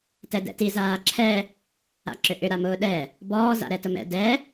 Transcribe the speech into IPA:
t ɛ d ɛ̰ t i z aː ǁʰ ɛ | a̰ ǁ ʏ ʔ ʏ ɾ a m ʊː ɗ ɛ | b ɔː z a̰ ɾ ɛ t ʊ m ɛ̰ d ɛ

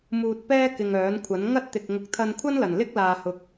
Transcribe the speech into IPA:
m uː˧ t̚ p ɛː˥ k ɪ˧ ŋ œː˨˥ n kʷʰ ɐ˨˥ n ŋ ɐ˥ t̚ t̪ ɪ˨ k̚ ŋ ʊ˨˥ k̚ t̪ʰ ɐ˧ n kʷʰ ɐ˥ n l ɐ˨˩ n l ɪ˥ k̚ l aː˨ h ʊ˨˥ k̚

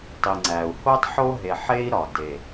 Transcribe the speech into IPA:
tˤ i˨ ŋ͡ǀ æ˨ u̯ h o˦ tˤ ħ o˦ ɦ e˨ ħ e˦ i̯ ɾ ɒ˨ d e˨

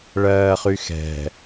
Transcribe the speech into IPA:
ɭ ɜː χ y x ɛ̤

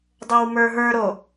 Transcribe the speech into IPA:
dˤ ɤ w m ə˞ ɦ ə˞ ɾ o

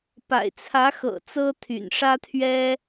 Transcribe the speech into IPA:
p a̰˨˩ ɪ̯ t͡sʰ ä˧˥ x ɤ̰˨˩ t͡s ɤ˥ t̪ʰ y̰˨˩ n ʂ ä˥ t̪ʰ ɥ ɛ˥

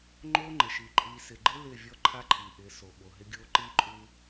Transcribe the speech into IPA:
ŋ͡ǃ o˦ ŋ͡ǃ ɪ˨ ʃ i˨ ǃʼ i˨ s ɪ˨ ɡ͡ǃ ɪ˦ l ɪ˦˨ vʲ ɔ˦ ǃʰ a˦ ǃʰ i˨ ʔ ɪ˨˦ s o˨ ɓ o˨ ɦ ɪ˦ ɡʲ o˦ ǃ i˦ ǃʼ u˦

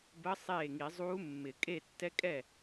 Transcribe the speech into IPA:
b ə˧˥ sˤ eː˥˩ ŋ i˨˩˦ zˤ uː˧˥ mː ɪ˨˩˦ kʼ e˥˩ tː ɛ˧˥ kʼ ɛ˥˩

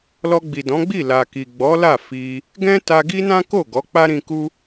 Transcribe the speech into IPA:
l ɔ˧ ɡ͡b i˨ d ɔ̃˨˦ ɡ͡b i˦˨ l a˨ k i˨ ɡ͡b ɔ˨˦ l a˦˨ f i˧ | ɡ ɛ̃˦ t a˧ ɡ i˦ n ã˦ k o˦˨ ɡ ɔ˨˦ k͡p a˦ ɾ ĩ˧ k u˦

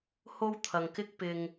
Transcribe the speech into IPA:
h o˧ w t̪ʰ ɐ˨ ŋ k ɪ˧ k̚ p ɪ˨ ŋ

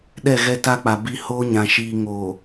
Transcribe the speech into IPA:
ɗ ɛ˦˨ ɣ ɛ˦ t a˦ k͡p a˨ b i˦˨ h oː˦ ɲ ã˨ ʃ iː˨ ŋ o˨

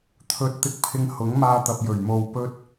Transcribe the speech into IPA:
t̪ʰ ɵ˨ t̚ t̪ ɪ˧ k̚ pʰ ɪ˧ ŋ h ʊ˨˥ ŋ m aː˧ t̪ ɐ˨ p̚ j ɵ˨˩ ɥ m o˨ w p ɵ˧ t̚

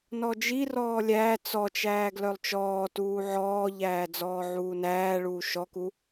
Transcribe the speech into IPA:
n ɔ d͡ʒ i r ɔː lʲ æː t͡s ɔ t͡ʃ æː ɡ l œ lˠ t͡ʃ ɔː t uː ʕ ɔː ʎ æː d͡z ɔː ʕ uː n æː ɭ uː ʃ ɔ k u

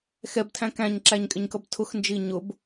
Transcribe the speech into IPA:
x ɛ b tʰ æ̃ k æ̃ ɲ ǁ æ ɲ kʼ ɪ ɲ k ʌ b tʰ ʊ x n d͡ʒ i ɲ ʊ b

